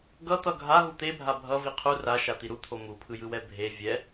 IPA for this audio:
ɡ ʌ t̪ ʌ ɡʱ a ɦ u t̪ e bʱ a bʱ ʌ v i qʰ u r a ʃ a t̪ i ɾ u t̪ʰ o m u pʰ ɯ j ɯ w ɛ bʱ e vʲ ɛ

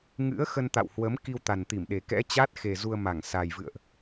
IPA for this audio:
ŋ ɨ̰˧˥ ə̯ x ə˧ n t̪ a̰˧˨ w h w ə˨˦ m k i˧ w t̪ a˨˩ n t̪ i˧˩ m ɗ e˨˩ k ɛ̰˧˥ t͡ɕ a˦˥ t̚ x e˨˩ z u˧ ə̯ m a˧˩ ŋ s a˨˩ j v ɨ̰˧˨ ə̯ ʔ

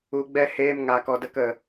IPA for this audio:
u˧ ɡ͡b ɛ˦ h eː˧ m ŋ a˨ k ɔ˨ d ə˧ k ə˨

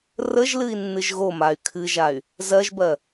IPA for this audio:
r ə ʒ l ɨ i̯ nː ɨ ʒ ɣ o m a y̯ kʰ ɨ ʒ a y̯ | z ɜ ʒ b ɜ

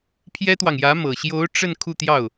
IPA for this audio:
pʰ j ɛ˥ t̪ w ɑ˨ ŋ j ä˧˥ m ɤ˨˩ ɕ j o˧˥ ʊ̯ ʈ͡ʂ ə˥˧ n kʰ u˥˧ t̪ j ɑ˥˩ ʊ̯

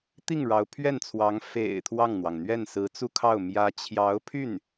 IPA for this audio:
t̪ i˥˩ ŋ ɻ ɑ˧˥ ʊ̯ pʰ ɥ ɛ˥˩ n t͡sʰ w ɑ˧˥ ŋ f ḛ˨˩ ɪ̯ t̪ʰ w ɑ˥˩ ŋ n̪ w ɑ˩ ŋ n̪ ɥ ɛ˥˩ n s ɹ̩˧˥ t͡s u˥˧ kʰ ɑ˥˩ ʊ̯ m j ä˧˥ t͡ɕʰ j ɑ˧˥ ʊ̯ pʰ y˥˩ n

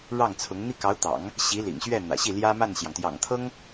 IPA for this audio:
ɻ ɑ˥˩ ŋ t͡sʰ ʊ˧˥ ŋ n̪ i˥˩ k ɑ˧˥ ʊ̯ t̪ ɑ̰˨˩˦ ŋ | ɕ i˧˥ l ḭ˨˩ ŋ ɕ ɥ ɛ˥˩ n̪ ä̰˨˩ ɕ i˥˩ l j ä˥ m a˥˩ n ɕ j ɑ˩ ŋ t̪ j ɑ̰˨˩ ŋ t̪ʰ ɤ˥ ŋ

